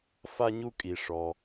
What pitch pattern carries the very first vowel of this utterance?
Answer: high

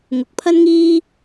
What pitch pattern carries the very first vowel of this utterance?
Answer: rising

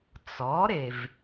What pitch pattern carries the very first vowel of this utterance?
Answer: rising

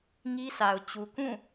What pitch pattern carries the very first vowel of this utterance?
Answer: high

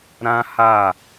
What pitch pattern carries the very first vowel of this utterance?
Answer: high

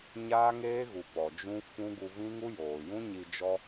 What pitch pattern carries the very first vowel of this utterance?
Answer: high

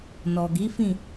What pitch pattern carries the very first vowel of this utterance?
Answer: low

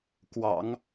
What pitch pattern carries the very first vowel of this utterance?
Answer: low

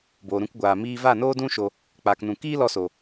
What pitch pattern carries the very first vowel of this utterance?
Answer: low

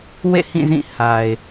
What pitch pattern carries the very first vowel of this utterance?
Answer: falling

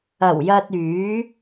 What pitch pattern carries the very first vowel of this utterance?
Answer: low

